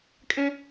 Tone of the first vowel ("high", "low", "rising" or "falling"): high